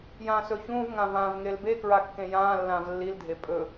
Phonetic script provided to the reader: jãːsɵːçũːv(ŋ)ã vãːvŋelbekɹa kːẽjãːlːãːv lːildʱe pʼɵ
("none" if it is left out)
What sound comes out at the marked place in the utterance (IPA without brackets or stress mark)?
ŋ